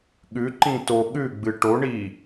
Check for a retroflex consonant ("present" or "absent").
present